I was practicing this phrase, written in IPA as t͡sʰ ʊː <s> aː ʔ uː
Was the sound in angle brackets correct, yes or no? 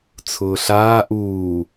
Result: no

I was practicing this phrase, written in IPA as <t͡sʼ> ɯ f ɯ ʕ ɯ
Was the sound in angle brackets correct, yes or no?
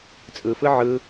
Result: yes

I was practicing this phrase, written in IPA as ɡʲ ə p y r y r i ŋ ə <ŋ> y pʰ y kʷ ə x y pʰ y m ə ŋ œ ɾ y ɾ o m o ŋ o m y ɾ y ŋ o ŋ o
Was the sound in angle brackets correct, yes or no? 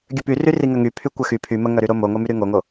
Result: yes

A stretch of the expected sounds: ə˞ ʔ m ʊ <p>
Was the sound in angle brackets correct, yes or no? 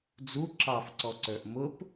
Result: yes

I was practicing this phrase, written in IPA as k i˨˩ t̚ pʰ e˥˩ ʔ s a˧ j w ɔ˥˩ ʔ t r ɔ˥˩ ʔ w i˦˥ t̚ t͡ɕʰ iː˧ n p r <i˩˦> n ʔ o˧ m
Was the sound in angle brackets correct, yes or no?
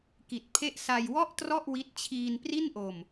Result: no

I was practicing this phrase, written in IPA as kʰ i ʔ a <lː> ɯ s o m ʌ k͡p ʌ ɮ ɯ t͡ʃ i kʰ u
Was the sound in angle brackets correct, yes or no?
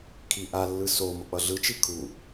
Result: yes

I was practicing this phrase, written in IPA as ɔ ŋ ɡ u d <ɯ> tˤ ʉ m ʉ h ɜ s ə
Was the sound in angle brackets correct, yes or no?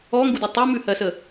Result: no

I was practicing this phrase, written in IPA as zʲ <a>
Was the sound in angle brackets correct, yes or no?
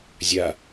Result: yes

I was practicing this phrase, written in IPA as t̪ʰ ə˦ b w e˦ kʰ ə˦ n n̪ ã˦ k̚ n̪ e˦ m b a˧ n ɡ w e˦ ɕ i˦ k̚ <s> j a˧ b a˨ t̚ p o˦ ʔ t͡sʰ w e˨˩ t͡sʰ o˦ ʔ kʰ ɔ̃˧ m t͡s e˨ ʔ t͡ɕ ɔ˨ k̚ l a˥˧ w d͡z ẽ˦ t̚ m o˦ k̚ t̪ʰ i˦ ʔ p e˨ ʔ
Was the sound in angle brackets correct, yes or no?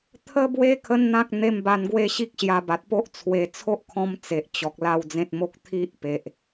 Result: no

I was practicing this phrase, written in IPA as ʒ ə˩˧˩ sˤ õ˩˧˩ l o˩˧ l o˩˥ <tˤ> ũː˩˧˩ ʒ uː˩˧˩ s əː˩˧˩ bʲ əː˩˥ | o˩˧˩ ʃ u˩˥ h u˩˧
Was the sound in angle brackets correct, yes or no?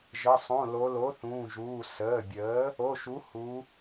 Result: no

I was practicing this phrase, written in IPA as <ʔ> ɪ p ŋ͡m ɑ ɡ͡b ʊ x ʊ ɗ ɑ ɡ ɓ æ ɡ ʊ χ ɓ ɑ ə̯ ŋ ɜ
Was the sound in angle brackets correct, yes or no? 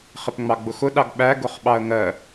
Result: no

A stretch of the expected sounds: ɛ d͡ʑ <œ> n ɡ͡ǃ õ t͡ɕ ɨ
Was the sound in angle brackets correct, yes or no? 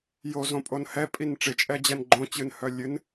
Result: no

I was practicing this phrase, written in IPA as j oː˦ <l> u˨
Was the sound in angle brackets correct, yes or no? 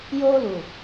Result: yes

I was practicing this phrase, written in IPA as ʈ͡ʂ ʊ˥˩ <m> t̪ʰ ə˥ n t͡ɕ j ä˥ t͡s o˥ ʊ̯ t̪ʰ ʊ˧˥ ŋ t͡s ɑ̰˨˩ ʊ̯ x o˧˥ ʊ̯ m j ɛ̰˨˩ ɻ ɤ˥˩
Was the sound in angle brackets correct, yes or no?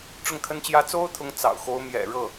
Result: no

